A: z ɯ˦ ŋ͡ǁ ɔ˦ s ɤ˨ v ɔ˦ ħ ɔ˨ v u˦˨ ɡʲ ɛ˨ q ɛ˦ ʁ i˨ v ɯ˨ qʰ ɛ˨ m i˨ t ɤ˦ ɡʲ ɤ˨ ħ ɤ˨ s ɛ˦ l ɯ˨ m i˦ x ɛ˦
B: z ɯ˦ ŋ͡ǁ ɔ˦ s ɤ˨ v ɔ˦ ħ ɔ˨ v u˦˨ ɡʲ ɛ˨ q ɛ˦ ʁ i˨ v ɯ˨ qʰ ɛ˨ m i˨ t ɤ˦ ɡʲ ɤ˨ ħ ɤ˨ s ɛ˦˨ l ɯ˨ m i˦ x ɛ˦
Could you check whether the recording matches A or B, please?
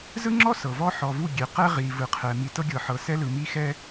A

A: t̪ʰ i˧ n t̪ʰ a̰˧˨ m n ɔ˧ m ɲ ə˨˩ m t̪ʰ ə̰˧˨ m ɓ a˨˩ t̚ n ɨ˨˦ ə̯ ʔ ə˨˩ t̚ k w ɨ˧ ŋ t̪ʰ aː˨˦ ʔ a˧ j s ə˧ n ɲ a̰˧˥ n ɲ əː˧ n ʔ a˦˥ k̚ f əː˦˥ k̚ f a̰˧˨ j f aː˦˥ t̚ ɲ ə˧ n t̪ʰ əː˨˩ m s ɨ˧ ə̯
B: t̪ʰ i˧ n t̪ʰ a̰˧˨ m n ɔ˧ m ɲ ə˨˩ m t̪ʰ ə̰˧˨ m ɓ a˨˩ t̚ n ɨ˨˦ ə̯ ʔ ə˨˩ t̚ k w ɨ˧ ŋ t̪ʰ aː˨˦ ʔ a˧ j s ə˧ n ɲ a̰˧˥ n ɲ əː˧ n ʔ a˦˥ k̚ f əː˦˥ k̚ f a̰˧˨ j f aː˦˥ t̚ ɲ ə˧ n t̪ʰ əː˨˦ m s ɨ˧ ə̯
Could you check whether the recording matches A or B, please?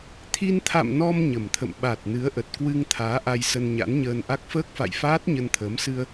B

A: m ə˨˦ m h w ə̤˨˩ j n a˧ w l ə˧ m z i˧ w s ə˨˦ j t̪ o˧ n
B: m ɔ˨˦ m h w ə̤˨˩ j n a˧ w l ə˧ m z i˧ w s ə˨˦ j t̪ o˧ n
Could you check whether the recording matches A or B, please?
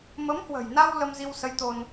A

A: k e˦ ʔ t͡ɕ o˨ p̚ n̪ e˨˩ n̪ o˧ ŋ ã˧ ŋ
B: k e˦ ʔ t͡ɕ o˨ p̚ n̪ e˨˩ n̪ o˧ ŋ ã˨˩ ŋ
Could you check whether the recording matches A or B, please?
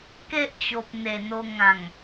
B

